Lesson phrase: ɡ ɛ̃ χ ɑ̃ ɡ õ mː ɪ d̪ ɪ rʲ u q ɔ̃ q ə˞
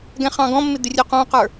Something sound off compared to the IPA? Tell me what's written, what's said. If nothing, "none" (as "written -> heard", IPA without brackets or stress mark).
õ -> ɔ̃